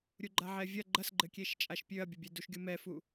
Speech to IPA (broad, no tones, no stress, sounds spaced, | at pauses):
ɾʲ u ɡ͡ǃ a ʕ ɛ vʲ ɐ ɡ͡ǃ ɐ s ɡ͡ǃ ɘ kʲ e ʃ t͡ʃʼ a ʃ pʲ ø ɐ̯ bʲ ɐ bʲ ɛ d u ʃ ɡʲ u m ɛ f u